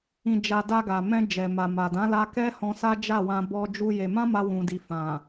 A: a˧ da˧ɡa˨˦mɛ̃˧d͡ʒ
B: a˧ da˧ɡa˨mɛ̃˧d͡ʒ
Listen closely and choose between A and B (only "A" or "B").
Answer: B